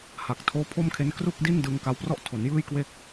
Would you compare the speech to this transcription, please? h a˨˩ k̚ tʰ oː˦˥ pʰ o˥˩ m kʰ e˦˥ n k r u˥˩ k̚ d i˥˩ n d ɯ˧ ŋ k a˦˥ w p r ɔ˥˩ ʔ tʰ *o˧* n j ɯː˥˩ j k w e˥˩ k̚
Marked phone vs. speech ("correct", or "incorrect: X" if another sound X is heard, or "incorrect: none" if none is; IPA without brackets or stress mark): incorrect: o˩˦